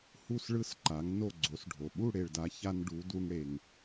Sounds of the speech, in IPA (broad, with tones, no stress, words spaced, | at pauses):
hu˥˨sɭɯ˥˨s ǃa˨˥ŋ no˥˨ɡ͡ǀo˨˥sɖʱo˨ ɓu˥˨ɽe˨ɭda˨˥ ça˦nɖu˨˥ du˦ŋ ɽe˨ŋ